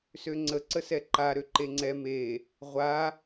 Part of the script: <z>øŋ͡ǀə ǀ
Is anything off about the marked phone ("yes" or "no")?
yes